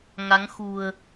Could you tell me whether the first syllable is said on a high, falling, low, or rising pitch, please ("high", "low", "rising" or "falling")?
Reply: rising